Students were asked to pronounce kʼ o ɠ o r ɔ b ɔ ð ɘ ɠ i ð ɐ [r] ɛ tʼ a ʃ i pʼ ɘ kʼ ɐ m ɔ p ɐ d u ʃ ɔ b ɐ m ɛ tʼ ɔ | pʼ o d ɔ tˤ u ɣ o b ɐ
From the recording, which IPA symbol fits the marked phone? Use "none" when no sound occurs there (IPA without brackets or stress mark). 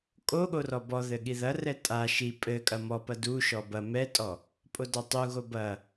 r